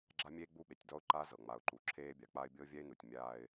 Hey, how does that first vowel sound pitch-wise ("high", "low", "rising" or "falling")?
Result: high